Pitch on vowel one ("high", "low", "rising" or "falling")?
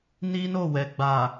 high